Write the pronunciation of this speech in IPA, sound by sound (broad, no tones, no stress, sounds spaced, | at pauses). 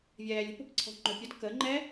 vʲ ɛː lʲ ə̤ p ə̤ p ǀʰ ɔ̤ ŋ͡ǃ ɵ pʲ ə d k ə ŋ͡ǃ ɛ